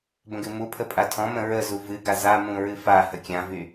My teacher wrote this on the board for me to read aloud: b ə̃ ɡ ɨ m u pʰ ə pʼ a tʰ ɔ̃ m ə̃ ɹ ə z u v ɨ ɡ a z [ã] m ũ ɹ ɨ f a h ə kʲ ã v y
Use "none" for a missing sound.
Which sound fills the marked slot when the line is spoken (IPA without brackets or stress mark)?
a